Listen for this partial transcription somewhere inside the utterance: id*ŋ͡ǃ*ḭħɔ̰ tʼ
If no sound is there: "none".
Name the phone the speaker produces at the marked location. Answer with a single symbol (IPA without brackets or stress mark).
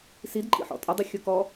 ǃʼ